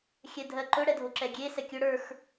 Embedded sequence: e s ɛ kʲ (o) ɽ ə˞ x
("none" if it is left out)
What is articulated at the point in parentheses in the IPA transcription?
ɵ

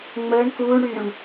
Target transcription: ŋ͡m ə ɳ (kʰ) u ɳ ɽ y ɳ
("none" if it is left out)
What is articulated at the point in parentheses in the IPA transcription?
k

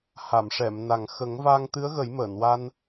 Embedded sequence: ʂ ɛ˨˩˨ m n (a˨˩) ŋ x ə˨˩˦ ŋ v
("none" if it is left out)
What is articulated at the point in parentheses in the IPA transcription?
a˨˩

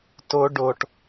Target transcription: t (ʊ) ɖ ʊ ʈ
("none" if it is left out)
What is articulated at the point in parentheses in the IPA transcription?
ʊ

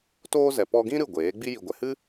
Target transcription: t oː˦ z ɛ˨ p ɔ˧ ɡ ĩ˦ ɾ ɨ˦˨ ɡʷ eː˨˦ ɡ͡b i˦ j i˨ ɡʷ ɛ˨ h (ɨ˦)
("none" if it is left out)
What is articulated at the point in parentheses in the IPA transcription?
ɨ˦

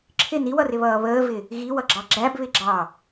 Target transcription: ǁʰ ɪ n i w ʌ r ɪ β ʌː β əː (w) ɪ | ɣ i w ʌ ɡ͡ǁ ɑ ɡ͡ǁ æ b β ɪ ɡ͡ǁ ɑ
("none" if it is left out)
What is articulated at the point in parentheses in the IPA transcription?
v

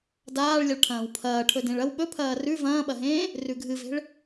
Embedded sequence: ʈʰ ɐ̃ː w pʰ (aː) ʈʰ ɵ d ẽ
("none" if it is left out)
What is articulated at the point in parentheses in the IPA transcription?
ɐː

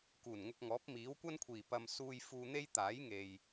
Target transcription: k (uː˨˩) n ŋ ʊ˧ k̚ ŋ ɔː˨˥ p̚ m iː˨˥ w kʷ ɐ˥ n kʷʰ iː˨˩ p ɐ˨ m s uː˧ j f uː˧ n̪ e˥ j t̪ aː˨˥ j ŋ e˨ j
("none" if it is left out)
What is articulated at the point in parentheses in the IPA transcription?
uː˨˩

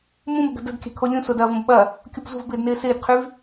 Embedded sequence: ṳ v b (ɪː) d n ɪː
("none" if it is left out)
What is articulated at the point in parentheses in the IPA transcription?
ɪː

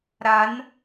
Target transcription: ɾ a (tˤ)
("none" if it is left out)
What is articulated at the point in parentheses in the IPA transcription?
n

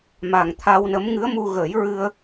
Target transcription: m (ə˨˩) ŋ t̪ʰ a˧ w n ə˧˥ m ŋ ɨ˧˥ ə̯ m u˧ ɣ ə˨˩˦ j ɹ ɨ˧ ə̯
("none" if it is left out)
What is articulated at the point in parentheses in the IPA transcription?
a˨˩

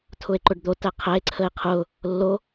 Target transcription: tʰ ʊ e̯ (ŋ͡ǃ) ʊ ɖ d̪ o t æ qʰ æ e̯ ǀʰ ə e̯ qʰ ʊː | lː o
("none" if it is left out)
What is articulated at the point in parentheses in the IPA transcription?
ǃ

